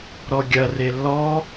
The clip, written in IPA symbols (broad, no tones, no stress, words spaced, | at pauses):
ɾɔɡʲɐre lːɔ